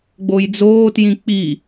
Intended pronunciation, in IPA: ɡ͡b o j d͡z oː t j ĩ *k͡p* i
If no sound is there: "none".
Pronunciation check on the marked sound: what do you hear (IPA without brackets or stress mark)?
k͡p